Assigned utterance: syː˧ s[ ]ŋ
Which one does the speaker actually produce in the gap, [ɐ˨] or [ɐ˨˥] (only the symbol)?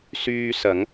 ɐ˨˥